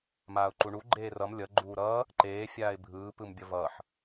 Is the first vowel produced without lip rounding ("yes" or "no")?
yes